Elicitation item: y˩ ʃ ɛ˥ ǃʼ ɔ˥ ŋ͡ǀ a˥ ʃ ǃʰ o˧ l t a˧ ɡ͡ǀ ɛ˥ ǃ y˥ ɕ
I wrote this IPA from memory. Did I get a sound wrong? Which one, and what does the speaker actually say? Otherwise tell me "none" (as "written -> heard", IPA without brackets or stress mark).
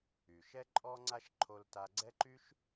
ɕ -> ʃ